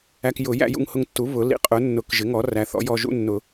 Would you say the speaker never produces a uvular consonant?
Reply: no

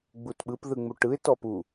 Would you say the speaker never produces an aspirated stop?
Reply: yes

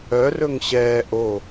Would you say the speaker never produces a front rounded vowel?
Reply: no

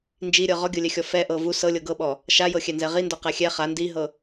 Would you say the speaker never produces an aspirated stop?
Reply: yes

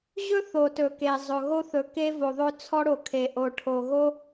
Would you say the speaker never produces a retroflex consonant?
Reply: no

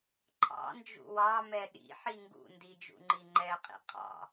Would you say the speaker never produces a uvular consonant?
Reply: no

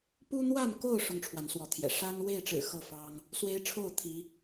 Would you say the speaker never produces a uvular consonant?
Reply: yes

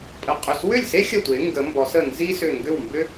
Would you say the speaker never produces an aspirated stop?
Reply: yes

